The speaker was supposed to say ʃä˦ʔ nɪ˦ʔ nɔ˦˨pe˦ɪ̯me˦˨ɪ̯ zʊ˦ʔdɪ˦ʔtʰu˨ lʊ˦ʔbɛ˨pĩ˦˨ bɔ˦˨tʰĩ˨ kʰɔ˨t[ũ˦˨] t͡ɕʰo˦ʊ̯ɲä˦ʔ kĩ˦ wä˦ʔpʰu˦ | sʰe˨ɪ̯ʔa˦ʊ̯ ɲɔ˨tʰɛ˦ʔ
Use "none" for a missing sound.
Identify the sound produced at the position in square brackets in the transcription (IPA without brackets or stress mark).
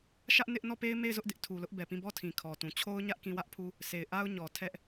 ũ˨